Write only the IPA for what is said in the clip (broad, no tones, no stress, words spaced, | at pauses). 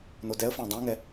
nodɛə̯fæ̃ dˤɛ̃ŋɛ